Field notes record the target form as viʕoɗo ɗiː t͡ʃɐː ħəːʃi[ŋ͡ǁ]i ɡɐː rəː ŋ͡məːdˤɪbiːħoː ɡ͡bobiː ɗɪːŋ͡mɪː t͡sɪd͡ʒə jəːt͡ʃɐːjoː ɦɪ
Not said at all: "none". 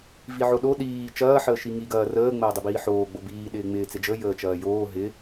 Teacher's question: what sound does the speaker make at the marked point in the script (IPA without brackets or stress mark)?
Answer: ŋ